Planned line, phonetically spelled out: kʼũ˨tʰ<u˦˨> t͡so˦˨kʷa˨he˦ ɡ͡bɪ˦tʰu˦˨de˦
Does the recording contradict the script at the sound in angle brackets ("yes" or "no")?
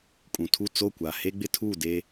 no